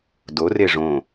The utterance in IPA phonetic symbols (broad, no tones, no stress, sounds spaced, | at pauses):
d o r e ʐ õ